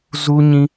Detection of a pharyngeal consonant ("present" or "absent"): absent